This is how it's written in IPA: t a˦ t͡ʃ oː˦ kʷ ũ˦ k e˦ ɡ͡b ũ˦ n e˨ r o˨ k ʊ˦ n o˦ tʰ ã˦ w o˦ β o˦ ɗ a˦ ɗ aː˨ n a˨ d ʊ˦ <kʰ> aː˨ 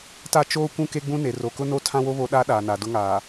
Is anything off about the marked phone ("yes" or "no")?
yes